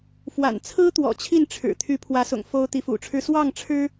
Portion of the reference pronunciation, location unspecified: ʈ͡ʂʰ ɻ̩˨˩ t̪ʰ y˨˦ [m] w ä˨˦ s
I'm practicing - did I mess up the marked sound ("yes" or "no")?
yes